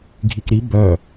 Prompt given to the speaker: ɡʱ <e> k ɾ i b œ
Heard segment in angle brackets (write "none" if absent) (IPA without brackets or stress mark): i